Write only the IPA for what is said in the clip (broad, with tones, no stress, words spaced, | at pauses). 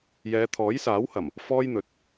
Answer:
jɛː˨˧t̪ʰɔː˨˥jsaː˨˥whɐ˨˩m | fɔː˥jn̪ɵ˨˥t̚